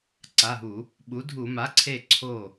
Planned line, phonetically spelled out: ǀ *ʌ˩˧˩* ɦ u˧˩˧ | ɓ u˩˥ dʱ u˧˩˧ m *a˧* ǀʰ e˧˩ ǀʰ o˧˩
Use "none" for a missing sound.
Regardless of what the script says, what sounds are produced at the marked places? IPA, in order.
a˩˧˩, a˩˥

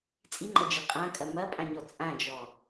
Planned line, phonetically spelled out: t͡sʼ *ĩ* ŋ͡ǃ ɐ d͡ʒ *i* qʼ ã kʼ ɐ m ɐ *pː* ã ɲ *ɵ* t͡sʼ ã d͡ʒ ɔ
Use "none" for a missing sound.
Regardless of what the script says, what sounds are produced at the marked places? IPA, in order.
i, i, pʼ, ɔ

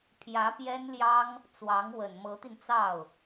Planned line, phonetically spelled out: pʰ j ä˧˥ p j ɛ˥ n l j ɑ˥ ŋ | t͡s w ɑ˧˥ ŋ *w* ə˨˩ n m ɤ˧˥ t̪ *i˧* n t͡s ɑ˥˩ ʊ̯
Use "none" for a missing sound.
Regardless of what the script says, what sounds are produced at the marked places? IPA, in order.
w, i˧

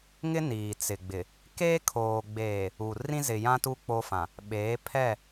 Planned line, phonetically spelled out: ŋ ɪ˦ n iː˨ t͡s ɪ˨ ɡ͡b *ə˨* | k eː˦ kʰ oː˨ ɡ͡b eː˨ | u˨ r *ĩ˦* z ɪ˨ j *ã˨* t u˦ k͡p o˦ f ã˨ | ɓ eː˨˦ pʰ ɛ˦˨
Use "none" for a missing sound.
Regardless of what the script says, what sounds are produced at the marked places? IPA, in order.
ɪ˨, ĩ˦, ã˦

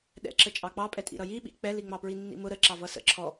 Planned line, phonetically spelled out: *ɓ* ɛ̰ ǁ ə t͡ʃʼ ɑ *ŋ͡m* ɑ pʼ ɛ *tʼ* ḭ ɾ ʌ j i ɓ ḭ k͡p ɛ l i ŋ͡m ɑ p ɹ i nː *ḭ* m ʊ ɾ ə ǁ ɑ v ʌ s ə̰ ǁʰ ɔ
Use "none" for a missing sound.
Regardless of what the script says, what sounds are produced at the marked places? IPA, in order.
ɗ, k͡p, tʼ, ḭ

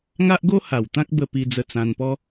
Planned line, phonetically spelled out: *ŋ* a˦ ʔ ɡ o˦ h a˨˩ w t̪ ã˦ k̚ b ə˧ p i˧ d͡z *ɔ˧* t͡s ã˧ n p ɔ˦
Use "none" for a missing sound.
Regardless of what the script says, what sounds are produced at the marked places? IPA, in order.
ŋ, ə˧

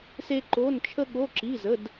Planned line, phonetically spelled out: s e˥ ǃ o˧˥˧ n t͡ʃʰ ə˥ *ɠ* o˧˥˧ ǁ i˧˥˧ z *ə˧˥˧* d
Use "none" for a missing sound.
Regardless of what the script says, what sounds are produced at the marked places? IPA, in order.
ɠ, ə˧˥˧

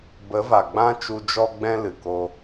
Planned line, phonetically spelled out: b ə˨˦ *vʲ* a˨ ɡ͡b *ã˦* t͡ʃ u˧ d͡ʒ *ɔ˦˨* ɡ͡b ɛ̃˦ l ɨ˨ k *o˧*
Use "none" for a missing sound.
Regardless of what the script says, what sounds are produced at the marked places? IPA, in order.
v, ã˦, ɔ˦, o˧

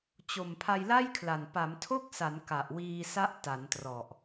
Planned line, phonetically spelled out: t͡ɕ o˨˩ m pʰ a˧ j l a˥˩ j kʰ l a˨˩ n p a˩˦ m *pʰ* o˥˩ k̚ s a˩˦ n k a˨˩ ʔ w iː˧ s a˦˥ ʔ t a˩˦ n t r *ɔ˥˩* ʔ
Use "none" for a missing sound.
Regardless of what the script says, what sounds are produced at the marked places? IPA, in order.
tʰ, ɔ˨˩

